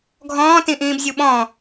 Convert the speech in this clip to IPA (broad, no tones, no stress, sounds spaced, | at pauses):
ɡʱ ɔ̃ː t ĩ ʔ ĩː b zʲ u ɓ ɔ̃